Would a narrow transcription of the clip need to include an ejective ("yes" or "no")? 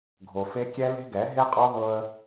yes